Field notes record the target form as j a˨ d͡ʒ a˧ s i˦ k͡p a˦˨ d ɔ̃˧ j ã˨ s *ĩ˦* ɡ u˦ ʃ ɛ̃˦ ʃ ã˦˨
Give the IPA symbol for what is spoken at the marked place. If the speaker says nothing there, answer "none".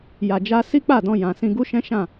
ĩ˧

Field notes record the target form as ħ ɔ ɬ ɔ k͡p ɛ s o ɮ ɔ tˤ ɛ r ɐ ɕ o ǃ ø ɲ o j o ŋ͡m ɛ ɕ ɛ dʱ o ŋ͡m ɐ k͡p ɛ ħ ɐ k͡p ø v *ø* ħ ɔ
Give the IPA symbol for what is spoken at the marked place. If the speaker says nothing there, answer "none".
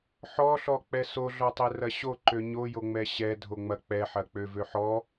ø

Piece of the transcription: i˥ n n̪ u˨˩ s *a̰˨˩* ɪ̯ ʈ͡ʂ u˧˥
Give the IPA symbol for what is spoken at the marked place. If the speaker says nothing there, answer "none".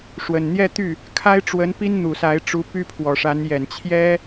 a˧˥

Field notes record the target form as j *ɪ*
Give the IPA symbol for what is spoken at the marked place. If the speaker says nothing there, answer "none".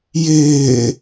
ɪː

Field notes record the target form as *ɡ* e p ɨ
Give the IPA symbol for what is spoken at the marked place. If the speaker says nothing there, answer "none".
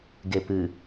ɡ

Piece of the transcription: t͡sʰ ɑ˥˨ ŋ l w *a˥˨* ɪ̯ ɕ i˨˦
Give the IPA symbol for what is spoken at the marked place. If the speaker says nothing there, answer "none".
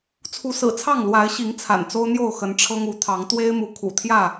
a˨˦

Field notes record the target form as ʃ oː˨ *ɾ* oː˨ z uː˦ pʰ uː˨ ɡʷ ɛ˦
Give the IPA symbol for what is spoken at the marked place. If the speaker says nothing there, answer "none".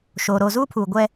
ɾ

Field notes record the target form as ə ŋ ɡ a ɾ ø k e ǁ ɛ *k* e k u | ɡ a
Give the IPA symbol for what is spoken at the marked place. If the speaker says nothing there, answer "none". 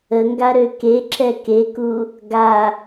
k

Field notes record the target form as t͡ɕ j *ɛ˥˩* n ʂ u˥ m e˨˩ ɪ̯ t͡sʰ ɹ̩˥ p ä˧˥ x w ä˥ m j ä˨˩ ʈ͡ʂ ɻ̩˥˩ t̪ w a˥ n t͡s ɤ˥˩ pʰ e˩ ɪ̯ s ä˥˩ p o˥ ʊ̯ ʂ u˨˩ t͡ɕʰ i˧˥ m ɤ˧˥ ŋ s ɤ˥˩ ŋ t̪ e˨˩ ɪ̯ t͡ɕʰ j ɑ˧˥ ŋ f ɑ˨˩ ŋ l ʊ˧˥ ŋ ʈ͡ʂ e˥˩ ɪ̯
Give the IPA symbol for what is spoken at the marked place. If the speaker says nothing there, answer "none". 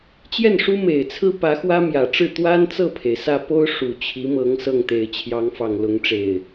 ɛ˥˩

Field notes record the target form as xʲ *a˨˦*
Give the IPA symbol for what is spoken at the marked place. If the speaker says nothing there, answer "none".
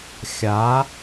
a˨˦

